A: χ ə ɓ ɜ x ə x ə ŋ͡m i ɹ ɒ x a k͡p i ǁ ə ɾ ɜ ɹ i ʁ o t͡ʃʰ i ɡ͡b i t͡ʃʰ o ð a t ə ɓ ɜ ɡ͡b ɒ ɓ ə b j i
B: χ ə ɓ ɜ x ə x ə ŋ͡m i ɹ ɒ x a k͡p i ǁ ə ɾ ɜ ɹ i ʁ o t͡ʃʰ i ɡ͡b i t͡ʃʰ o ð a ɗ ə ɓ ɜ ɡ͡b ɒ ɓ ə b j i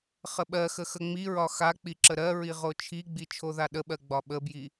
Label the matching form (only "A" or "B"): B